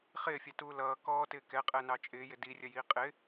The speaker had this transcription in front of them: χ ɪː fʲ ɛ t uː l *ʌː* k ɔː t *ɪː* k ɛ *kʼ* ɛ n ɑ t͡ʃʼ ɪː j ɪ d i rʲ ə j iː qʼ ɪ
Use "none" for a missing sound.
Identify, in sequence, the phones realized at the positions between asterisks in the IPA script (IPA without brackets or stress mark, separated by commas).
ʌː, ɪː, qʼ